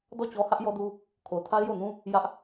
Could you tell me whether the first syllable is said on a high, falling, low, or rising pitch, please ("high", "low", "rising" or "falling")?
falling